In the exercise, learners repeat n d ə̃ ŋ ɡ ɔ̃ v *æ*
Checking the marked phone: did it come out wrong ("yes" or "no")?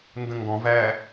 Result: no